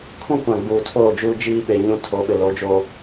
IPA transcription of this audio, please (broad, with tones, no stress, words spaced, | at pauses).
kʰũ˦kʷã˨ ɡ͡buː˨tʰoː˦˨d͡ʒuː˦ d͡ʒiː˦ ɓe˨ɲũ˦ tʰo˨˦ɓɪ˨ lo˨˦d͡ʒoː˦